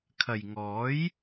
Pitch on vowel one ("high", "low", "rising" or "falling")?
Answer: low